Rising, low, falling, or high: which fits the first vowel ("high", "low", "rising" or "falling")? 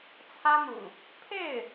high